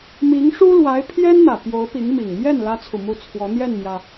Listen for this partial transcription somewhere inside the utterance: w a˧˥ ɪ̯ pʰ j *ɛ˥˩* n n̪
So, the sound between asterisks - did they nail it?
no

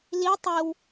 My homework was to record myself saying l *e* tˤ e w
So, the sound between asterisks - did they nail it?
no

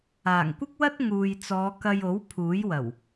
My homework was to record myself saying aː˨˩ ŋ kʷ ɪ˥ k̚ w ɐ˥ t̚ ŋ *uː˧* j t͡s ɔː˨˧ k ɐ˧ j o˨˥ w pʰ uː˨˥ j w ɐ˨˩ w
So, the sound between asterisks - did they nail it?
no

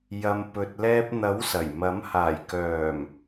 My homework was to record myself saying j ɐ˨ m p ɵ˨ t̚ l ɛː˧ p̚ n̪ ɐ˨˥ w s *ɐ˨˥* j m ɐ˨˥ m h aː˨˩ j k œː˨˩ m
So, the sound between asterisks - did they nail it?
no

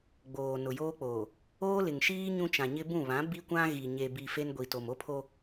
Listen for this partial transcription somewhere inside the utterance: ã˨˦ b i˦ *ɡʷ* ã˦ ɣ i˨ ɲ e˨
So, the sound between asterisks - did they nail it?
no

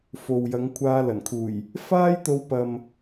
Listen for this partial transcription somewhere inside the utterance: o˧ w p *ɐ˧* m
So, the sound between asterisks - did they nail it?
no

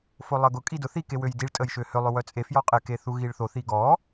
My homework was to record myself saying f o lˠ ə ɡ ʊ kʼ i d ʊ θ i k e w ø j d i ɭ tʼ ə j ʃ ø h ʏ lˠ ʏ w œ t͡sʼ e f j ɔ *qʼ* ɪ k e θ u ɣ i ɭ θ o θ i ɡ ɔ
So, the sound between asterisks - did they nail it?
yes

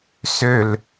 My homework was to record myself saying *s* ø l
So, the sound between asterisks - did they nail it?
yes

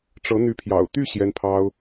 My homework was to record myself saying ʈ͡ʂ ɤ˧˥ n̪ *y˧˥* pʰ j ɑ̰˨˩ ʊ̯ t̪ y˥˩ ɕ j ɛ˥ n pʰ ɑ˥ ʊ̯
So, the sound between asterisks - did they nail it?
yes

